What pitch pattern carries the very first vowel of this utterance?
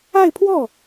falling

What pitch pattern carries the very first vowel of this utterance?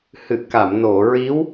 low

